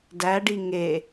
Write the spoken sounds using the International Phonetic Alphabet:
d æ ɖ i ŋ e

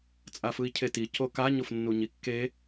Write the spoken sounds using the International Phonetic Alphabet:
t͡sʼ a f ɯ i̯ cʰ e t i c o k a ɲ o f nː u ɲ i kː e

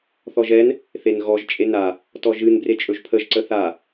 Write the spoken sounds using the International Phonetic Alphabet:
θ ɔ ʒ ɛ n | θ e n ɣ ɔ ʒ t͡ʃʼ e n a | t ɔ ʒ ɨ n b r e t͡ʃʼ ɵ ʒ pʰ ə ʒ ǀ ə θ a

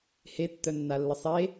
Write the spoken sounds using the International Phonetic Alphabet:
h e tː œ nː a lː ə sˤ e

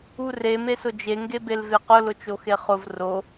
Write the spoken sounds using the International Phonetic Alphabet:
u r e m e s ʊ d͡ʒ e ŋ ɡ e b e l v e q ʊ l ʊ t͡ʃ o x e χ ʊ v r o

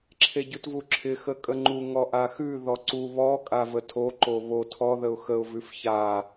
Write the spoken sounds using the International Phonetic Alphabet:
ǁʰ e ɟ ʉ t v u ǁʰ ɪ x ə kʼ ə ŋ͡ǃ u ŋ ɔ ʔ a x ʉ ð ɔ ǀ u β ɔ kʼ a v ə tʰ o ǃ o β o tʰ ɔ ð ə ʊ̯ x ə ʊ̯ v ʉ f ç a

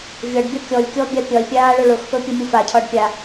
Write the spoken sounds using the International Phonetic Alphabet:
vʲ ɒ ɖ bʲ ɒ kʲ ɔ lʲ kʲ ɔ bʲ a pʲ ɒ lʲ pʲ aː ɭ ɵ ɭ ʊ x p ɵ pʲ ʊ mʲ ʊ f a cʰ ɒ ɖ pʲ a

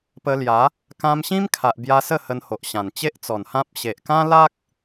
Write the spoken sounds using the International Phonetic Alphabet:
p ə˧ l j a˨˦ | k ã˧ m ɕ ĩ˦ m kʰ a˨ ʔ b j a˧ s ə˥˧ h ə˧ n h o˨ ʔ ɕ ã˨˩ n t͡ɕ e˦ ʔ t͡s ɔ˨˩ n h ã˦ p̚ ɕ e˨ ʔ k ã˦ l a˦ k̚

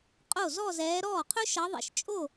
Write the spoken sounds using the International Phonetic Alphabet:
qʼ o˥˩ z ɔ˥˧ z ɛː˨˦ ɾ ɔː˥˩ qʰ ɵ˥ ʃ ʌ˨˦ ðˤ ḛ˨˩ ʃ t͡ʃʼ o˥˩

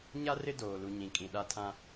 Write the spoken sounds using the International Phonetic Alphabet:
ɲ a˦ r ɪ˦ d oː˨ l u˨ ɲ ĩ˨ kʼ ĩ˨ ɗ a˦ tʰ ã˦

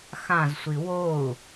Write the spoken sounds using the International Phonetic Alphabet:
x ã z sʷ i w o u̯

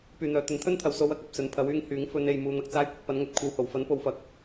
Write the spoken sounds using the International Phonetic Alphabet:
p yː˨ n̪ œː˨ t̪ ɵ˨˥ n t̪ʰ ɵ˥ n t̪ʰ ɐ˨ w s o˥ w ɐ˨˥ k̚ ɐ˨ p̚ s ɵ˨ n pʰ ɐ˨˥ w yː˧ ŋ h yː˨˥ ŋ f ɵ˨˧ n e˨ j m uː˨ n̪ ɐ˨ k̚ t͡s aː˧ j kʷ ɪ˨ k̚ p ɐ˨˥ n ŋ ɵ˨ t̚ kʷʰ ɐ˨˧ w h o˨˩ w f ɐ˨˥ n p o˨ w f ɐ˨ k̚

